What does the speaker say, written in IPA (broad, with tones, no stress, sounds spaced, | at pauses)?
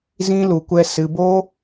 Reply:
z ĩ˦ l u˧ kʷ ɛ˦ s ɨ˧ b o˦